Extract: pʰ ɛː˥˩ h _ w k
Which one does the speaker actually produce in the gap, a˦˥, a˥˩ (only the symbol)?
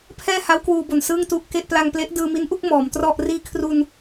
a˦˥